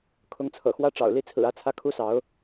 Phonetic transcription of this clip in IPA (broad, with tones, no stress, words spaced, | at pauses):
kʰʊ˧˥ŋt͡sʰɤ̰˨˩xwä˥˩ ʈ͡ʂɑ̰˨˩ʊ̯ li˥˩t͡sʰɹ̩˨˩ ä˥˧t͡sʰä˥˩kʰu˥sɑ˧˥ʊ̯